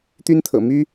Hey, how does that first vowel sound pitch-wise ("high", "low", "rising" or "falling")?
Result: high